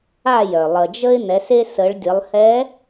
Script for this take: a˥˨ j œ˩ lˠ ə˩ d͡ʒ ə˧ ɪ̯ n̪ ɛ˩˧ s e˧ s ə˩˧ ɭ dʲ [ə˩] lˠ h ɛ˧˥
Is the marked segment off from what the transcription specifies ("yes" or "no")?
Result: yes